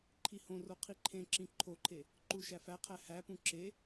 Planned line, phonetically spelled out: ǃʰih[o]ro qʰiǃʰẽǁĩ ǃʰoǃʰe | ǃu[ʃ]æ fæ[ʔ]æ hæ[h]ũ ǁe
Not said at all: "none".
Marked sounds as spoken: õ, ʃ, qʰ, p

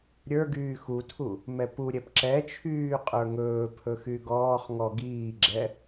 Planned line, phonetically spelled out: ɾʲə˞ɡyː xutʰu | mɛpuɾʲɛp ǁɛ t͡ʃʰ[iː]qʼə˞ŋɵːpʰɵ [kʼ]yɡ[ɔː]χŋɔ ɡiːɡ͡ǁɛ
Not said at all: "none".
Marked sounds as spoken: yː, x, ɔː

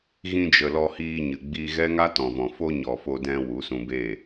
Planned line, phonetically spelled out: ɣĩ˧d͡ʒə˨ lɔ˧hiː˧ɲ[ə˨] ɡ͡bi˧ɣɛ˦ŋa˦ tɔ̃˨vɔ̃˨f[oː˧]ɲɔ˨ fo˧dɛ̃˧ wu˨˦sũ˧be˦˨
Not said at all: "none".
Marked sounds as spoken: ɨ˨, o˧

